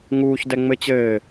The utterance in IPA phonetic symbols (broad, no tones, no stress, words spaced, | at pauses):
ŋuːçdɛŋ͡mɘ t͡ɕɘː